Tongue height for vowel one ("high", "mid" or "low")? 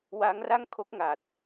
low